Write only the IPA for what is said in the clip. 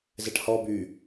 z ɛ ʈ h ɔ b y

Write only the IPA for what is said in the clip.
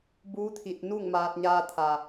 b uː˧˥ t̪ʰ i˧˩ t̚ n u˥˨ ŋ m aː˧ t̚ ɲ aː˧ t̪ʰ a˩

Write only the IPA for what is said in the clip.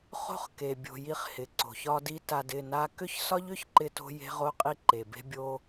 χ o̤˦ χ k e˨ bʲ o̤˧ j i˦ χ h ɪ˨ ǀ o̤˨ ç ɒ˦ d i˦ t a˧ d ɪ˦˨ n a˦ k ʏ˦ ç s ɒ˦ ʎ ʏ˦ ç ǃ ɪ˦ t o̤˦ j e̤˦ ʁ o˦ qʼ i˦ ǃ e˨ b e̤˦ bʲ o˦

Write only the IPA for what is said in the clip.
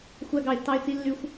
xʷ æ˨ ɡ ɑ˩ ɪ̯ tː ɑ˨ ɪ̯ t͡s i˨ lː y˨ xʷ

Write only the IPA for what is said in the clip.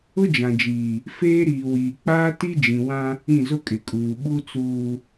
ʊ˦ d͡ʒ ã˨ d͡ʒ iː˨ | f eː˦ ɾ iː˨ w iː˨ k͡p aː˦ t i˦ d͡ʒ ĩ˨ w ã˦ | ĩ˦˨ z ʊ˦ kʼ ɪ˨ kʼ uː˨ ɓ u˦ t͡s uː˨

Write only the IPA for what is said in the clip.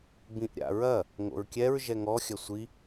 b ĩ ʔ ɾʲ a̰ ɹ ɐ | ŋ o̰ ɹ kʲ ɛ ɹ ʒ ɛ ŋ ɔ xʲ ɐ sʷ i

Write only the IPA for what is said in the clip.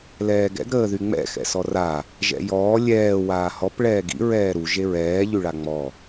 l ɛː ɡ ɛ̰ ɡ ɾ əː ð y ŋ͡m ɛ̰ x ɛ̰ s ɔ r a | ʒ ɛ̰ j ɔː lʲ ɛː w aː h ɔ p ɭ ɛː ɡ ḭ ɹ ɛː ɾ u ʒ e ɹ ɛː ʎ y ɭ a ŋ͡m ɔ

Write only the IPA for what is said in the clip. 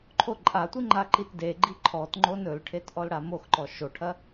ǃʰ o ǃʼ a tʷ i ŋ͡ǃ a ǃ i t d e ɡ͡ǃ i ǃʰ ɔ t ŋ͡ǃ o n ɵ l ʈʰ e t ʔ ɔ l ɽ a m o x ǃ ɔ ʃ o ʈʰ ɐ

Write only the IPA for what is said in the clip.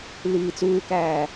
l iː t͡s uː k æː

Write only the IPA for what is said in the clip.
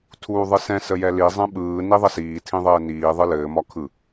tʰ uː ðˤ ɯ s ɛ̃ s ə j ɛ l i zˤ ɛ̃ ɓ ɯː n i ðˤ ə s iː tʰ ĩ ðˤ ɘː n iː ðˤ ɯ l ɘː m ɒ kʰ ɯ

